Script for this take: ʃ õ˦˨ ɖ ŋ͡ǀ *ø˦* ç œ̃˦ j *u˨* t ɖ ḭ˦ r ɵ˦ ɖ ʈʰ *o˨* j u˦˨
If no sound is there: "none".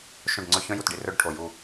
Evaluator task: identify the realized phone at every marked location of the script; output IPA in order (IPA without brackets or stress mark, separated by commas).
ɵ˦, u˨, o˨